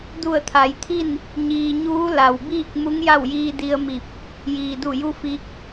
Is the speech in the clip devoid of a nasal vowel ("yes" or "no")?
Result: yes